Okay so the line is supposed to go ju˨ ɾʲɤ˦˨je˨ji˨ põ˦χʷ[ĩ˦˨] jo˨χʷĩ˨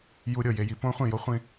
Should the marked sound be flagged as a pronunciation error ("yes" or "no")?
no